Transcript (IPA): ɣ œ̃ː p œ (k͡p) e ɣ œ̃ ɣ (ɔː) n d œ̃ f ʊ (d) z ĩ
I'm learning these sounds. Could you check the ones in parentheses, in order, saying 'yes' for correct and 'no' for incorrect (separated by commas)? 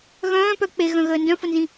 yes, no, no